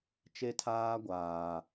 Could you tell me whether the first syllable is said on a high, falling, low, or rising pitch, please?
high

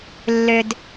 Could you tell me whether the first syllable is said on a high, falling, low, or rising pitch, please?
low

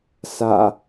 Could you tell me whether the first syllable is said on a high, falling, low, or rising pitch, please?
low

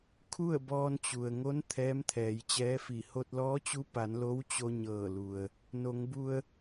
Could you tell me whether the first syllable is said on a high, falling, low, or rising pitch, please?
falling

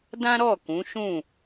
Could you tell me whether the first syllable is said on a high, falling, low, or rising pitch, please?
high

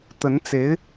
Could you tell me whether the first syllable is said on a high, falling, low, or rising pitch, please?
rising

